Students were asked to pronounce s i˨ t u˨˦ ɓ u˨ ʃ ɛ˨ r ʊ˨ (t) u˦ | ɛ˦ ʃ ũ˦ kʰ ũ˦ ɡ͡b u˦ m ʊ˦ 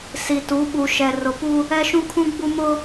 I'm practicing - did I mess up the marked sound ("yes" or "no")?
yes